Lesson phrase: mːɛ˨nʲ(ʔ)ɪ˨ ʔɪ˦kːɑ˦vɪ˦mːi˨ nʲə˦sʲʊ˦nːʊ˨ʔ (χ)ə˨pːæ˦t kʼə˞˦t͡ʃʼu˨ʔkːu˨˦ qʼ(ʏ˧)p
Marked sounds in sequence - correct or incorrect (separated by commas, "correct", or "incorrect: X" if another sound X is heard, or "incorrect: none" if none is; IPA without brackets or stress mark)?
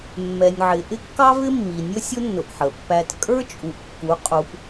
incorrect: ʕ, incorrect: ħ, incorrect: u˧